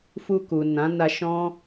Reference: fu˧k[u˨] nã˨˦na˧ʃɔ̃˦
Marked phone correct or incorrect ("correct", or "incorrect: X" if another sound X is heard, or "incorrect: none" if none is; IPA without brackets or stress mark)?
correct